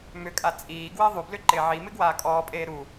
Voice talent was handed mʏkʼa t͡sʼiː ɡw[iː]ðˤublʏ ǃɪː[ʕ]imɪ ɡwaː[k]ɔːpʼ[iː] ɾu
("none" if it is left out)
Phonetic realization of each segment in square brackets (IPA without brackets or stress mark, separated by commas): ɪː, ʕ, kʼ, eː